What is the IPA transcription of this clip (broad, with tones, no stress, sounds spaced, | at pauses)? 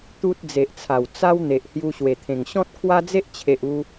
t̪ u˦ t̚ d͡z e˨ ʔ t͡sʰ a˨˩ w t͡s a˦ w n̪ e˨ ʔ h j u˧ ɕ w e˨˩ t̪ʰ ẽ˨˩ ŋ ɕ ɔ̃˦ t̚ kʰ w a˦ d͡z e˦ ʔ t͡ɕʰ e˨ ʔ u˧